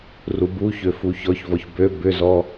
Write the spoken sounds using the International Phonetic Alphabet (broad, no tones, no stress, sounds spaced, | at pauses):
r u b u ç ø f u ç ɔ ç v ɔ ç b ø b ʏ z ɔ